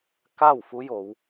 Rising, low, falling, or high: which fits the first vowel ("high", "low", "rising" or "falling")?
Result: falling